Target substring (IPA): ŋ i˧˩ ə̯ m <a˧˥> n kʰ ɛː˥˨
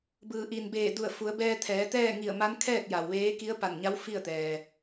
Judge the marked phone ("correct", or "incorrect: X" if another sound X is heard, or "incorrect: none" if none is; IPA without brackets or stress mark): correct